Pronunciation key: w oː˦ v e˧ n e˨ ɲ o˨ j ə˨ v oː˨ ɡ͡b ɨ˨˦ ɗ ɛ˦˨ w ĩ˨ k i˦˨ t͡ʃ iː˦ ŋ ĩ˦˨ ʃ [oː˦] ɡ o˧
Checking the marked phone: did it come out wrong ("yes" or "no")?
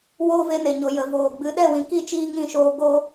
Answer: yes